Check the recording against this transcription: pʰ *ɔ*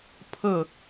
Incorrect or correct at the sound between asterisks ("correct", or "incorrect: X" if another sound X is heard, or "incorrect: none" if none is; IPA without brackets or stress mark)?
incorrect: ə